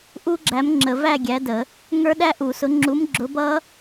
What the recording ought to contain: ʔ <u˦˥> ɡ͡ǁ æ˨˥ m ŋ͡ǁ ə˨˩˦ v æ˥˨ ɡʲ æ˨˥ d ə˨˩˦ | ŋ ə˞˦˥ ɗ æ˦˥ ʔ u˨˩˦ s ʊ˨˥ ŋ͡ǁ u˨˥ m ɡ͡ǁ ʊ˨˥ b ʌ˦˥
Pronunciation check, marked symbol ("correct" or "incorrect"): correct